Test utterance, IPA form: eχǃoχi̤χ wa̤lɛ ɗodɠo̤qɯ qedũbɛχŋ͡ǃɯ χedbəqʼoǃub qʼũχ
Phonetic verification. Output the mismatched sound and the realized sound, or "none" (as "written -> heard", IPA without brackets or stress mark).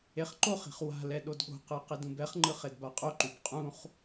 ə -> a